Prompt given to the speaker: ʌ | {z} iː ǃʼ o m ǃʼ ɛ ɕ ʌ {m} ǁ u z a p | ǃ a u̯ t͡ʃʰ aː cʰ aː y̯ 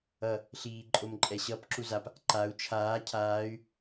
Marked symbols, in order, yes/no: no, no

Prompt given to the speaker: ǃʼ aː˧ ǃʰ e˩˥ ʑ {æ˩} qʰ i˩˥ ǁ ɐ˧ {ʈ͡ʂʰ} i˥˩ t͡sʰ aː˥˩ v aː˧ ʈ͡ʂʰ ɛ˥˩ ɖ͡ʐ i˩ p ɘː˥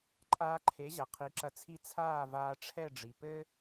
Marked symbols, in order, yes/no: no, no

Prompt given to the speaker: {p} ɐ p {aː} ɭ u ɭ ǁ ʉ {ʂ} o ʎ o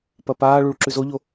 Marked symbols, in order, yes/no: yes, yes, no

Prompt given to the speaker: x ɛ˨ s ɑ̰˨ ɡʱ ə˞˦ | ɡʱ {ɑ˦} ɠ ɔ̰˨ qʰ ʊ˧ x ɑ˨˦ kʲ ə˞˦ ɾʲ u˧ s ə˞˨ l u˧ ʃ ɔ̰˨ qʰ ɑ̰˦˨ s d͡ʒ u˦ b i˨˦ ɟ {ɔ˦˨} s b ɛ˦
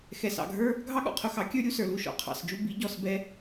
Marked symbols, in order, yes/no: yes, yes

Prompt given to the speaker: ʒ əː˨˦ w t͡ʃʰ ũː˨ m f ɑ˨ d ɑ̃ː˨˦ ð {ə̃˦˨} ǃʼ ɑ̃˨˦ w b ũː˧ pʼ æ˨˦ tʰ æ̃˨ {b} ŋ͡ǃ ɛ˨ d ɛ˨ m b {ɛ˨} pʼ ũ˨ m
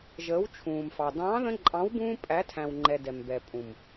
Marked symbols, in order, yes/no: no, no, yes

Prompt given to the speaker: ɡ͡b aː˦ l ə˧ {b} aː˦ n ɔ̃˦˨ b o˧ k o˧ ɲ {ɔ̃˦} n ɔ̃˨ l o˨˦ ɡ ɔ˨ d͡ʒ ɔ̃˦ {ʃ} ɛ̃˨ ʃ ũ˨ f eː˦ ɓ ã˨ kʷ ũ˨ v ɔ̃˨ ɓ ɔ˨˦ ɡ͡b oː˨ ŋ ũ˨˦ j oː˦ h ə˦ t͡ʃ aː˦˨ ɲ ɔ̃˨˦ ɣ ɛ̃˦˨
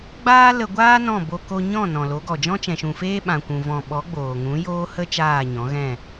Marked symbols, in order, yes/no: no, no, no

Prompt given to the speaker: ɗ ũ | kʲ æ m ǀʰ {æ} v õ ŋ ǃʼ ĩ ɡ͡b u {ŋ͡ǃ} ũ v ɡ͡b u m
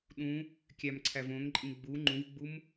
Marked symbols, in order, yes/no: yes, yes

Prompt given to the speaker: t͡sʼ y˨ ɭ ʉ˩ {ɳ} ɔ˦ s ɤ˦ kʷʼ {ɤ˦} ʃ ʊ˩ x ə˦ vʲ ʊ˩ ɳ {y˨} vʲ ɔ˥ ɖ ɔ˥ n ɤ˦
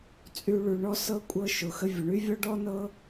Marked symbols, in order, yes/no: yes, yes, no

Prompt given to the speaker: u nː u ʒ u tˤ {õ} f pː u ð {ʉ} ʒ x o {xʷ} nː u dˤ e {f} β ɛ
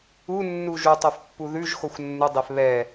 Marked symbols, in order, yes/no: no, yes, yes, yes

